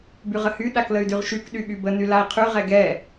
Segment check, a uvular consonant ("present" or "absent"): present